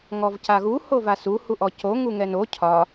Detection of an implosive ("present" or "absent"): absent